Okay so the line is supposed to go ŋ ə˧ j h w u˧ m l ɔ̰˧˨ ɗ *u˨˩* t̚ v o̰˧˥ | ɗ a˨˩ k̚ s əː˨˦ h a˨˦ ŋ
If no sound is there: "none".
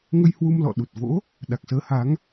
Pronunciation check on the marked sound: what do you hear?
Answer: u˨˩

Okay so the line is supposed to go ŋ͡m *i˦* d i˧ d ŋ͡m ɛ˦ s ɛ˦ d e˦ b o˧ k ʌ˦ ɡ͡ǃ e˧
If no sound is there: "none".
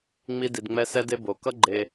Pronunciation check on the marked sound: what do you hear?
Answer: i˦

